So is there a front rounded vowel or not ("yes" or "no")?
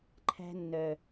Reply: yes